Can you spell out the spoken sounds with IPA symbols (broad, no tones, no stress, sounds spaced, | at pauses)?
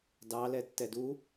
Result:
d ɑ l ɛ tː ɛ d u